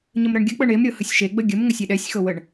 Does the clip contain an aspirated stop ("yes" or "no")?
no